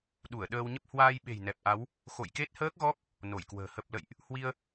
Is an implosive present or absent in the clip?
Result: present